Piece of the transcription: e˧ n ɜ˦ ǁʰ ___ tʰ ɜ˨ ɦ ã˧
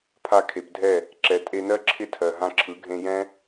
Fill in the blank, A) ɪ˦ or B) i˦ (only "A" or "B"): A